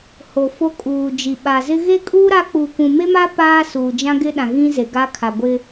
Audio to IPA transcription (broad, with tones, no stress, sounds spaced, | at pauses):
h o˨ f o˦ kʼ uː˨ d͡ʒ i˨ ɓ a˨ z ɪ˦ ɣ e˦ kʼ uː˦ ɾ a˦ k͡p uː˨ kʷ ũ˨ m e˦ m a˦ p aː˦ s uː˨ d͡ʒ ã˦ ɡ ɪ˦ ɗ ã˨ ɣ ĩ˦ z e˨ ɡ a˦ kʰ a˨ ɡʷ ɪ˦